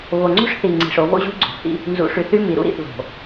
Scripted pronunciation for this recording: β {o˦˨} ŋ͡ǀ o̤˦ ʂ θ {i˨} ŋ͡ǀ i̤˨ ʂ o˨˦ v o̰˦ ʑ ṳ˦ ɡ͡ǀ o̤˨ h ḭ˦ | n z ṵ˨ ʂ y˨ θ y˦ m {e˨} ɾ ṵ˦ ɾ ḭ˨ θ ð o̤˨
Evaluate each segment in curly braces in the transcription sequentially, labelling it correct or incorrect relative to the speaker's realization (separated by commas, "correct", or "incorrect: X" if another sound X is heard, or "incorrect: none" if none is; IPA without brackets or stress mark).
incorrect: o˨, correct, incorrect: i˨